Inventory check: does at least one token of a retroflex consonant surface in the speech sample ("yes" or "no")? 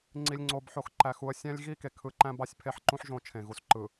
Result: no